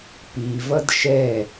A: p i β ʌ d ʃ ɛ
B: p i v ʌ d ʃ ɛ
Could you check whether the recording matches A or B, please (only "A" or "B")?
B